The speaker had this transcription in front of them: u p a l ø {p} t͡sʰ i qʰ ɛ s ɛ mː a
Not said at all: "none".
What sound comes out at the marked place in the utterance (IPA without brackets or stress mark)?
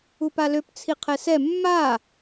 p